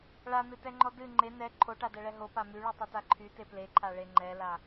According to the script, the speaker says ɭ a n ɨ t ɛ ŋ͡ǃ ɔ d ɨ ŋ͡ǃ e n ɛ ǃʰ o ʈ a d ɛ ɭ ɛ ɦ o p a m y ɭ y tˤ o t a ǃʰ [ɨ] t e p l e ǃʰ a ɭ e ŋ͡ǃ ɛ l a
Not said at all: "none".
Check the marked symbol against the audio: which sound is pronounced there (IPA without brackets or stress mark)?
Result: y